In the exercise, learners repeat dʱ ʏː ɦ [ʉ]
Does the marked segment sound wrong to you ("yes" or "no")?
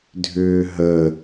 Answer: yes